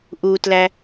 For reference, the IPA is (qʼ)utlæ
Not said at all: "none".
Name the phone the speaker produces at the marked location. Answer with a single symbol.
ʔ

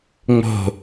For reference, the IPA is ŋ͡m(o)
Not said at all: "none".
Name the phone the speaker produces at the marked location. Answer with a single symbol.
o̤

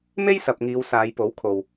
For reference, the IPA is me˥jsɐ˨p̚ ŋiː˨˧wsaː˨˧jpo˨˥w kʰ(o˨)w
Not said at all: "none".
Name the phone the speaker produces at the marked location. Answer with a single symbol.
o˨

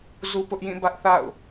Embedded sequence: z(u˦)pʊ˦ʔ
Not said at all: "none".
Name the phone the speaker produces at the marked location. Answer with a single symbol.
u˦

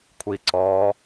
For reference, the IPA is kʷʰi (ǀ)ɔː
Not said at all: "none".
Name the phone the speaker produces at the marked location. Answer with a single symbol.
ǀ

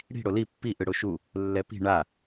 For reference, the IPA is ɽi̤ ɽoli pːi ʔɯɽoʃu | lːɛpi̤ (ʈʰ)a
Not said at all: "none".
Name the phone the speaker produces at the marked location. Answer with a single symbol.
ɳ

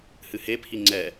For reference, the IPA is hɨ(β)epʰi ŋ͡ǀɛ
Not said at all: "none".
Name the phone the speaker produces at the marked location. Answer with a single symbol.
h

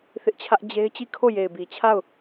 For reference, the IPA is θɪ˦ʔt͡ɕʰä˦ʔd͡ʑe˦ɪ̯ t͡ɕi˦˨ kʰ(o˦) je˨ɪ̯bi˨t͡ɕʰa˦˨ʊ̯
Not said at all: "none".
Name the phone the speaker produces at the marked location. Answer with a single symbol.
o˦˨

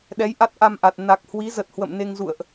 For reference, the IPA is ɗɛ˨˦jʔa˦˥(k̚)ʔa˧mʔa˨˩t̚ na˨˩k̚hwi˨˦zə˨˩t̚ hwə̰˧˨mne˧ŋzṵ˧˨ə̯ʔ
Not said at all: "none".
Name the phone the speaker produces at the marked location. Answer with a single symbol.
t̚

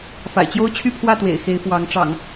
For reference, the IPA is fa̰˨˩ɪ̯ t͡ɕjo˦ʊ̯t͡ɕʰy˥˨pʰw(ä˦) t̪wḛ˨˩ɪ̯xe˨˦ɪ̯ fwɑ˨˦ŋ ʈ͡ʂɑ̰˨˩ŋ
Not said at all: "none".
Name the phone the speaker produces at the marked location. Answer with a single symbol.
ä˥˨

